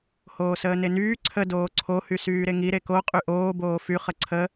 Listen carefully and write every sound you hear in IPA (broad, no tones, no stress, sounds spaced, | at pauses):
h oː s əː n e n yː ǀʰ ə d oː ǀʰ o h y s yː ɾ e ŋ i ɾ e k o qʼ y ʔ oː b oː f y χ ə ǀʰ ə